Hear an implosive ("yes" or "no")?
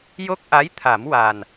no